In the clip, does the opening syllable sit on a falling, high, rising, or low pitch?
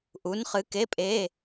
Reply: rising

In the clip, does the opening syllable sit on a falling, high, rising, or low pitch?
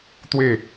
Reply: falling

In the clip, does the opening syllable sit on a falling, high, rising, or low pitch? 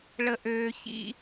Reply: high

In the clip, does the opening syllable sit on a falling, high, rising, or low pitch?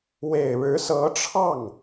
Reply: low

